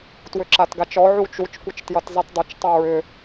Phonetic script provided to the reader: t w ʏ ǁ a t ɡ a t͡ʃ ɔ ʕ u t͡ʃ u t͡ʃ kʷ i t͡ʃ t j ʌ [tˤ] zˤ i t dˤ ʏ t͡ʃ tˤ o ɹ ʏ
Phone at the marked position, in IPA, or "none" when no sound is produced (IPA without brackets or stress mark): t